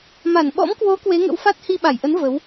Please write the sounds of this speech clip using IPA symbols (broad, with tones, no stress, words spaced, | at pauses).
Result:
ma˧˩nɓɔ̰˧˥mkwo˨˦ kwe˨˦ŋə̰˧˥wfa˦˥t̚ hi˧ɓa˧˩jʔə˨˦n və˨˦w